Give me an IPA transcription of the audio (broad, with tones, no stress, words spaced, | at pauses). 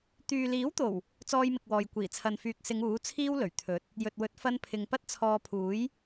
t̪yː˨liː˨˥wt̪o˨˩w | t͡sɔː˧jmɪ˨k̚wɔː˨j kʷiː˨˩t͡sʰɐ˨nfyː˨k̚sɪ˨˧ŋ uː˨˥t͡sʰiː˥wlɵ˨˩ɥ t̪ʰɵ˨˥t̚ | jɵ˨t̚wɵ˨˥t̚fɐ˧npʰɪ˨ŋ pɐ˥t̚t͡sʰɔː˧ pʰuː˨˥j